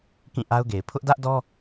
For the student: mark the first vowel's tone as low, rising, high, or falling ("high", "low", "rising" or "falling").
falling